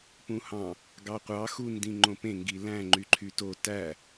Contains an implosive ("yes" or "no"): no